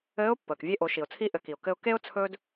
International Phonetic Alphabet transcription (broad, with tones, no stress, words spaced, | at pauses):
ɘː˧˥ʊ̯pːəː˩k vʲe˧ʔo˩˧ʃi˩ʊ̯t͡sʰi˧˥ ʔɘ˩˧ki˩ʊ̯ kɘ˧ʊ̯ ke˥ʊ̯ t͡sʰɵː˥d